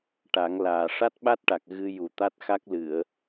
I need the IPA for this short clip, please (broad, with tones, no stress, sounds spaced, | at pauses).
ʈ a˨˩˦ ŋ l aː˨˩ ʂ a˦˥ t̚ ɓ a˦˥ t̚ ʈ a˨˩ k̚ ɣ ɨ˧ j u˨˩ t̪ a˦˥ t̚ x a˦˥ k̚ l ɨ˨˩˨ ə̯